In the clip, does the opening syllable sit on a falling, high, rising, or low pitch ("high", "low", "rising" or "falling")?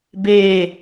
falling